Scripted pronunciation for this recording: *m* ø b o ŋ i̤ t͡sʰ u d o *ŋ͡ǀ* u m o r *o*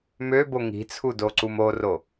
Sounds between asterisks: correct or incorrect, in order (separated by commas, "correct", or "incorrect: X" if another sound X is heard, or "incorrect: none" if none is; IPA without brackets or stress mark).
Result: correct, incorrect: ǀ, correct